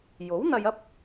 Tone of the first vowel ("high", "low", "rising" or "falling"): rising